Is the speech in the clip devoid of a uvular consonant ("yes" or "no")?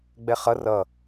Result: no